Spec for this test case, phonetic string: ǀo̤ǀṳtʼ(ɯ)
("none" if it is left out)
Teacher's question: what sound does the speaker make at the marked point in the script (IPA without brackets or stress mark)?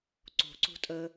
ə